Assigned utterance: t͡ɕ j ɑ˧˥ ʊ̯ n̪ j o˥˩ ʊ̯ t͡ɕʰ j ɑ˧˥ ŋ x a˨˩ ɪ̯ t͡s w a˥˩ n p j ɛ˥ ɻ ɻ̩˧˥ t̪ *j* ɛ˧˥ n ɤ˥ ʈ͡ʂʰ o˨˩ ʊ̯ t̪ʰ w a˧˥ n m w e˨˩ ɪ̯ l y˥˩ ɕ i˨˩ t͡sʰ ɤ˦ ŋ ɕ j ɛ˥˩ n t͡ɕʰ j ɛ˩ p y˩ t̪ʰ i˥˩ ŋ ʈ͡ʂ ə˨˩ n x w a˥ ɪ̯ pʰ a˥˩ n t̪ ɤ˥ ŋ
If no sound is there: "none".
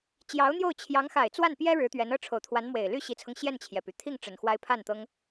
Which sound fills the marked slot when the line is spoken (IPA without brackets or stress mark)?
ɥ